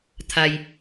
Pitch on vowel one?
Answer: low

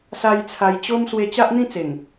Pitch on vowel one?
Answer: high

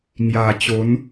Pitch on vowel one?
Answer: low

